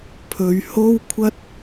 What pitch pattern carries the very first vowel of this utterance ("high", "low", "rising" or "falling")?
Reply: low